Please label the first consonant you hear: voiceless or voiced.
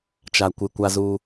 voiceless